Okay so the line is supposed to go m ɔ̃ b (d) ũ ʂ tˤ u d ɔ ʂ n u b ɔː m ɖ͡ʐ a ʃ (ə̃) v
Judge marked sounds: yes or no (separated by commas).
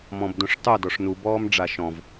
yes, no